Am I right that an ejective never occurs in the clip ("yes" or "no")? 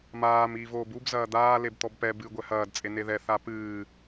no